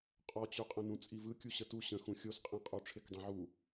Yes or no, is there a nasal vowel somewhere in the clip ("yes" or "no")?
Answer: yes